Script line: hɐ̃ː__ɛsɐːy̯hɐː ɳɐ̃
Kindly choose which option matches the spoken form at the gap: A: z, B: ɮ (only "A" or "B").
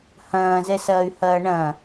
A